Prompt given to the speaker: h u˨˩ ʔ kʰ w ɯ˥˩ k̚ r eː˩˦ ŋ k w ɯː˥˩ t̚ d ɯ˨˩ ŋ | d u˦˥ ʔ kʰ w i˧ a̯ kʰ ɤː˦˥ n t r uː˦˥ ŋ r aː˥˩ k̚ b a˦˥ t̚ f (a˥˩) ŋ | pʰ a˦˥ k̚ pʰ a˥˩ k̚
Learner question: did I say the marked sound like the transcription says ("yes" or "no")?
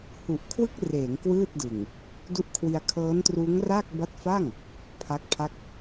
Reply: yes